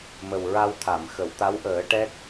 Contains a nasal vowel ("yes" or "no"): no